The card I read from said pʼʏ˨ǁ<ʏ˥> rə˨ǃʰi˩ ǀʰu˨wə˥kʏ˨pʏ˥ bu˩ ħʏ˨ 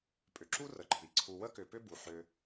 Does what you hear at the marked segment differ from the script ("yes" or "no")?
yes